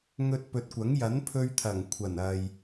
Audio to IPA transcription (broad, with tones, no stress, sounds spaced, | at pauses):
ŋ ɵ˧ t̚ p ɵ˨ t̚ kʷ ɐ˨˥ ŋ j ɐ˨˥ n pʰ ɵ˧ ɥ t̪ʰ ɐ˨˩ ŋ kʷʰ ɐ˨˩ n ɐ˨ j